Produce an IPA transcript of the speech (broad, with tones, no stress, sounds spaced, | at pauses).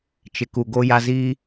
t͡ʃ ɪ˨ k u˨ ɡ o˦ j a˦ z iː˦